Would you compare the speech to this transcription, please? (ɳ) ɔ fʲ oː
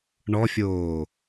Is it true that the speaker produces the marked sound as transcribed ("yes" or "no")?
yes